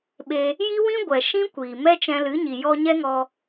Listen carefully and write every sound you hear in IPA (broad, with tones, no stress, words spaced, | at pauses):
ɓe˧ | ji˦wĩ˦ ɡʷɛ˨ ʃĩ˦kʷiː˨ mɛ˦t͡ʃɛ̃˧lɨ˨˦ɲi˨ jɔ˧ɲɛ˦ŋɔ˧